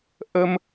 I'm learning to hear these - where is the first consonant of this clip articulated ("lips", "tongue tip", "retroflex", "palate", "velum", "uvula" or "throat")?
throat